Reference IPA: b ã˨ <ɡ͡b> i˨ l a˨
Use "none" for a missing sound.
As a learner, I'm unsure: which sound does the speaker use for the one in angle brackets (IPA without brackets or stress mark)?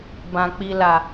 k͡p